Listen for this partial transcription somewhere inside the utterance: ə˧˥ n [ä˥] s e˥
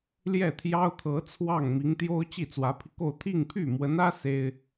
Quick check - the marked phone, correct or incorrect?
correct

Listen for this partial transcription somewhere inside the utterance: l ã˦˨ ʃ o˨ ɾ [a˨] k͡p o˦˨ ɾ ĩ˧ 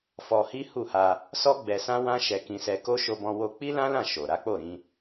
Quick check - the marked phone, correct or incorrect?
incorrect: a˨˦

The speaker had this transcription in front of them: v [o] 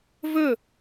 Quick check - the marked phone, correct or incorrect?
incorrect: ɵ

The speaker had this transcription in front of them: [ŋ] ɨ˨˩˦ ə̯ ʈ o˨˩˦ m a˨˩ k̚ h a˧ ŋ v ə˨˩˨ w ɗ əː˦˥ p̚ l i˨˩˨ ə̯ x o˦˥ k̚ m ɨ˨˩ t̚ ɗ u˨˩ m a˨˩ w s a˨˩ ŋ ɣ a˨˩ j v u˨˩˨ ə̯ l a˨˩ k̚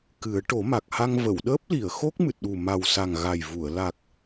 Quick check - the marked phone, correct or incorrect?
incorrect: k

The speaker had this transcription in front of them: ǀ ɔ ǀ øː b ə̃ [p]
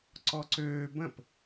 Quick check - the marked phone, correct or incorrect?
correct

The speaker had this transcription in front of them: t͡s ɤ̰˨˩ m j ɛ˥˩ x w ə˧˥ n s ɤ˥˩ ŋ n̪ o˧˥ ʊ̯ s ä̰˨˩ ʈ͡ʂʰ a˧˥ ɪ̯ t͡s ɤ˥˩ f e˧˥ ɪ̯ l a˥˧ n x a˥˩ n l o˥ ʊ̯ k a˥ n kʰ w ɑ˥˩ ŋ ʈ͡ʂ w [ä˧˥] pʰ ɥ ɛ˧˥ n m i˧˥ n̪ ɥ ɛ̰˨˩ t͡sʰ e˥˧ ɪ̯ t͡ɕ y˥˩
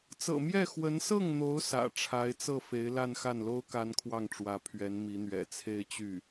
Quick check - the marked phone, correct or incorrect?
correct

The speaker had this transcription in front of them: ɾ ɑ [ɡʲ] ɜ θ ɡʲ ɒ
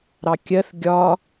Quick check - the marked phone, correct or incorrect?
incorrect: kʲ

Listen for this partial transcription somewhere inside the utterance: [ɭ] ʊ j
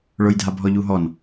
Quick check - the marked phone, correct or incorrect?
correct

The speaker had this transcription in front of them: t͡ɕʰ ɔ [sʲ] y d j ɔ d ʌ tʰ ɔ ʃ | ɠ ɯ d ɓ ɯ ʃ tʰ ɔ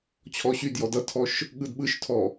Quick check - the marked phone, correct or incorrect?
incorrect: ɕ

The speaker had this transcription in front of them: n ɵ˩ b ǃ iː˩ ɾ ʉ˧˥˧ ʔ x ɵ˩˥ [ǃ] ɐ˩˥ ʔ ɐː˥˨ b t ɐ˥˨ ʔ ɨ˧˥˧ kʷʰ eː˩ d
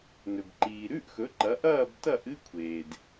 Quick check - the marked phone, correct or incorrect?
correct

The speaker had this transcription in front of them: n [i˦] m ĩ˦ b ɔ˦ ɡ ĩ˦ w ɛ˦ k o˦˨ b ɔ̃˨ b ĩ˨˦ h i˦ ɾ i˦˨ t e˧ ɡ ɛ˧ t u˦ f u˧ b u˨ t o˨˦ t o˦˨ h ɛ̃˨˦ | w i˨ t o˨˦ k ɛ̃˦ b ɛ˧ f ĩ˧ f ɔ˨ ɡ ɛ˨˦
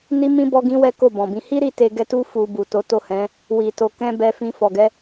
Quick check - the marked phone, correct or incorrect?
correct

